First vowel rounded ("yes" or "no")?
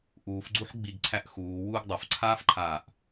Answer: yes